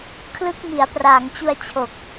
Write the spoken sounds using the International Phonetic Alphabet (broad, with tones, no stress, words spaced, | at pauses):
kʰlɯ˦˥k̚mi˩˦a̯praː˩˦ŋt͡ɕu˧a̯ t͡ɕʰo˨˩k̚